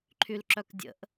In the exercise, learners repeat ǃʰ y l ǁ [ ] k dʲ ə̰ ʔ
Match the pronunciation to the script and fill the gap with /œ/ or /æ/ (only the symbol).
œ